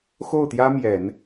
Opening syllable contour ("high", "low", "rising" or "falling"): falling